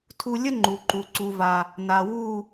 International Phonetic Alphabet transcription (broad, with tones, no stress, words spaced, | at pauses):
tʰu˧ lʲə˦ ŋ͡ǃu˨ǃu˨ ǀu˨va˨ | na˨ wu˦˨